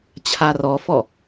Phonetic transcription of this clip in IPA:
t͡ɕʰ a r ɔ f ɔ

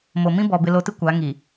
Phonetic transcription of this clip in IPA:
m o˨ m ĩ˦ b ɔ˨ b ɪ˨ l o˨ t ɪ˦ kʷ a˨˦ ŋ i˨

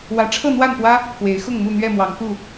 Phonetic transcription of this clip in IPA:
w ä˨˦ ʈ͡ʂʰ ɤ˥˨ n̪ w a˥˨ n p w ä˦ | k w e˨˦ ɪ̯ x ʊ˥˨ ŋ m u˥˨ n̪ ɥ ɛ˥˨ m w ɑ˨˦ ŋ k u˥˨

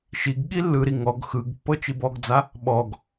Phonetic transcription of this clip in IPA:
ʃ i ɡ ɠ i lː ɯ ɾ i ŋ ɔ ɡ x ɯ ɡ pː ɤ t͡ʃ i b ɔ ɡ d͡z a | ɓ ɔ ɡ

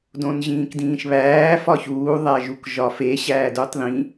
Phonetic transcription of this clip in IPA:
d õ n ʑ ĩː k d ĩː ʃ β æː f ɒ ç uː ðˤ æ ʒ u k ʒ ɒ f e ɕ æː d u tˤ ð ĩ

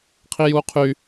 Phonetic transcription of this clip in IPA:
qʰ i j uː qʰ y

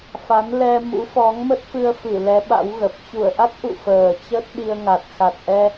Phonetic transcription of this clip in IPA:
f a˨˦ n l ɛ˧ m ṵ˧˥ f ɔ˨˦ ŋ m ə˦˥ t̚ f ɨ˧ ə̯ f ɨ˧˩ l ɛ˨˦ ɓ a̰˧˥ w ɣ ə˨˩ p̚ t͡ɕ u˧˩ ə̯ ʔ a˦˥ t̚ ʔ ṵ˧˨ f əː˨˩ t͡ɕ ə˦˥ t̚ ɗ i˧ ə̯ ŋ a˨˩ t̚ x a˨˩ t̚ ʔ ɛ˧

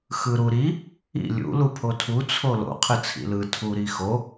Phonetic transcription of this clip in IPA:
x ɯ ɾ u ɾ i | ḭ lʲ ṵ l u pʰ o tʰ u t͡sʰ o l o̰ qʰ ɯ t͡sʰ ḭ l ɯ tʰ u ɾ i x o

